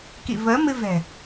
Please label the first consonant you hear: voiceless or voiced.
voiceless